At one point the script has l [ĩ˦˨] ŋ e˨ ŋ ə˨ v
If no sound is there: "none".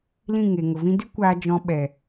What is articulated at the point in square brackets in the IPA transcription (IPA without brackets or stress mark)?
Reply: ĩ˦˨